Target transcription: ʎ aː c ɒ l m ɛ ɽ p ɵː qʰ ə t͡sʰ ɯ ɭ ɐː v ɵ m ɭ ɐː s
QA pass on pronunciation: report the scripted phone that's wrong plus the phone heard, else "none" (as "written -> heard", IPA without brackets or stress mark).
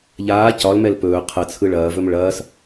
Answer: ɽ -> l